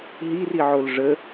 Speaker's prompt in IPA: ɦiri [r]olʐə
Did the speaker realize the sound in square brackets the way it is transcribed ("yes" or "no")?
no